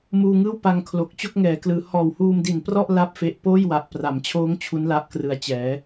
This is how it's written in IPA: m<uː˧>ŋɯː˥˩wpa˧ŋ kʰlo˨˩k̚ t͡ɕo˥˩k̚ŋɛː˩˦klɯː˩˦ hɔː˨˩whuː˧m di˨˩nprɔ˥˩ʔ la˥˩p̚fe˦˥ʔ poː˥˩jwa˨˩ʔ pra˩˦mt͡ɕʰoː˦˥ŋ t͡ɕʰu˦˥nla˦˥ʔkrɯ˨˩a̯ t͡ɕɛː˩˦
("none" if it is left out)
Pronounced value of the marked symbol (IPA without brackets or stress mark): uː˧